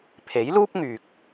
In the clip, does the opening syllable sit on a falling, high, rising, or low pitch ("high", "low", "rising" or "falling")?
rising